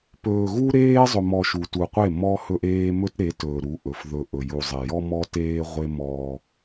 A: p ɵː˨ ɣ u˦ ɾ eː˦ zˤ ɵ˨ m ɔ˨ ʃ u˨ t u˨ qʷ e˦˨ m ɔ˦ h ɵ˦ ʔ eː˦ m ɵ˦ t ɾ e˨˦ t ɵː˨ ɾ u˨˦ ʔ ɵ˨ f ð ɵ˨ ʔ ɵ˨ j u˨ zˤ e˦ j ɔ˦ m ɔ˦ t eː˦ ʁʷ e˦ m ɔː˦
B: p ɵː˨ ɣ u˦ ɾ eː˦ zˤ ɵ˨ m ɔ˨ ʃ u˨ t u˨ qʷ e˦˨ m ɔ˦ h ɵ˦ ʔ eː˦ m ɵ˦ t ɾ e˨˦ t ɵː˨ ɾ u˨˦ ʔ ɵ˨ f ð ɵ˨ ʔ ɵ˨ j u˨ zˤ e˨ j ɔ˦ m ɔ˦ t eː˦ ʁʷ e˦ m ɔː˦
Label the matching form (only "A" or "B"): B